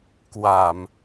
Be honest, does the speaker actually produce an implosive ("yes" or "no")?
no